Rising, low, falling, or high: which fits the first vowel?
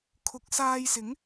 rising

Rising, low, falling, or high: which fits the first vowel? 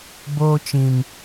high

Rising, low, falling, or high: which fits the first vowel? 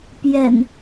low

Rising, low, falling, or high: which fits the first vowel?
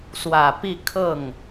low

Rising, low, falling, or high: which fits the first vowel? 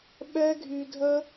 high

